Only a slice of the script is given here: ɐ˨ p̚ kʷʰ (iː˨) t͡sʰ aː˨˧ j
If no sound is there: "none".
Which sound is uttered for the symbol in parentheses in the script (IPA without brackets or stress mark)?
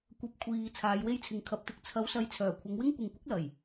iː˨